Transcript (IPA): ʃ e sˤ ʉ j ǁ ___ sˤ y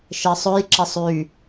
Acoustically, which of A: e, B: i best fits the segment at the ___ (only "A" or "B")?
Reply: A